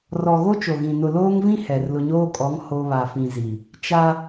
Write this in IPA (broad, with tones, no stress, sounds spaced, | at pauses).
r ɔ˨ ɣ o˦ t͡ʃ o˨ ɣ ĩ˨ n ʊ˨ l oː˦ ŋ v ĩ˦ h ɛ˨ r l ʊ˨ ɲ oː˦ kʼ ɔ˨˦ ŋ h o˦ β a˨ f ĩ˨ z i˨ | t͡ʃ a˦